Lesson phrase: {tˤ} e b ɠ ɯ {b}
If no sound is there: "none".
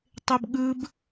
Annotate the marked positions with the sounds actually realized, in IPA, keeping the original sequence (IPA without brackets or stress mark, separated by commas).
tˤ, b